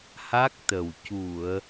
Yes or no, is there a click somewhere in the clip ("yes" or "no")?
no